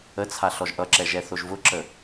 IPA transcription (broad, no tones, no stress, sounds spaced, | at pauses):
ə t͡sʰ a ɬ ɔ ʒ ʔ ʌ ǁ ɛ ʒ ɛ θ o ʒ v ʊ ǁ ə